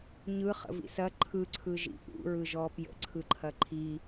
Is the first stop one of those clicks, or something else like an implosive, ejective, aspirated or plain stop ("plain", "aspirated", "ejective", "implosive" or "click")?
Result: click